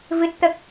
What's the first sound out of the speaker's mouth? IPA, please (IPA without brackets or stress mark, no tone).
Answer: v